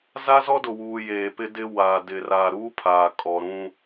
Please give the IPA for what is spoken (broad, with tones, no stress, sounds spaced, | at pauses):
z a˦ z ɔ˦ d ʊ˨ w uː˨ j eː˨ p ɪ˦ d ɪ˦ w aː˨ d ɪ˨ r a˨ ɾ uː˦ pʰ aː˨ kʼ ɔ˨ ɾ ũ˦